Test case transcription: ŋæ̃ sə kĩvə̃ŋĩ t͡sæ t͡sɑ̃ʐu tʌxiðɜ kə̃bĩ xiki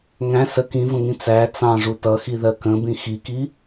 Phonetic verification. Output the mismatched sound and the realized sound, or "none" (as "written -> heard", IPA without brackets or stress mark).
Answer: none